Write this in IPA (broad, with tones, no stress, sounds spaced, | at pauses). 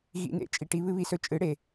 ɣ ḭ˧ n ḛ˨ t͡ʃʼ i˨ ʈ i˧ β ɨ˦ β i˧ s ɵ˧ t͡ʃʼ ɨ˨˦ ɽ e˨